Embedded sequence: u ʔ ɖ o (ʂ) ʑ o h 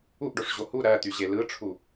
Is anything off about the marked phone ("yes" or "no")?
no